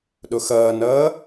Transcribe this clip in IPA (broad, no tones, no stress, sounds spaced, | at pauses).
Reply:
ɗ o x ʌː n ʌː